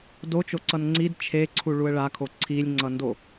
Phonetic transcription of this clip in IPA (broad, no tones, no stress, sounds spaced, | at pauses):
d o t͡ʃ o ǀ ʌ n ŋ͡ǀ i d t͡ʃʰ e ǀʰ u ɭ u ə̯ ɭ a kʰ o ǀʰ i lʲ ŋ͡ǀ ʌ n d o